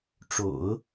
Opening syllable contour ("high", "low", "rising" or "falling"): low